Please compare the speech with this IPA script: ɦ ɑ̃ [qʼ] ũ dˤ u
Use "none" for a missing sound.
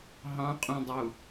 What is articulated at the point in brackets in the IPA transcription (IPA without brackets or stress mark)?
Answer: qʼ